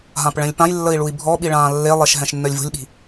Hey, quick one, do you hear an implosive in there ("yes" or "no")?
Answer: yes